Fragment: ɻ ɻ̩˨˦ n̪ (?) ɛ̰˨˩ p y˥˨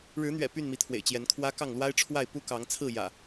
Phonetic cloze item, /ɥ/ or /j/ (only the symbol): ɥ